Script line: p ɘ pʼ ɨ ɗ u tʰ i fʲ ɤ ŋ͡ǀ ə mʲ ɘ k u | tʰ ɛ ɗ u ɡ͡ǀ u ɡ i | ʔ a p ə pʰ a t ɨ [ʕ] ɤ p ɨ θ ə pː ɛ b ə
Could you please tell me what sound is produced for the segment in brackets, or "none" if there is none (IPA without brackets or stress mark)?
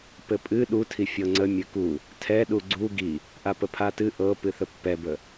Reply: ʔ